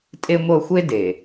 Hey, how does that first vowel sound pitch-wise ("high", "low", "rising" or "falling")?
high